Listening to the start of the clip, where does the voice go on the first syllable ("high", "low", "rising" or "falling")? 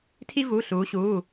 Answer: high